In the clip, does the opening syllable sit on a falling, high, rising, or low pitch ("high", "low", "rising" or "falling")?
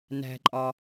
low